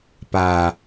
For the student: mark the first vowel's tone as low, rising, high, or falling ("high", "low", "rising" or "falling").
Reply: low